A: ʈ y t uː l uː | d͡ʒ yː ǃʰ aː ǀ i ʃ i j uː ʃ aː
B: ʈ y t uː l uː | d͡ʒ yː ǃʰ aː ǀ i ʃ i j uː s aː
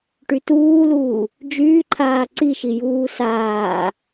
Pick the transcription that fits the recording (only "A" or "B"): B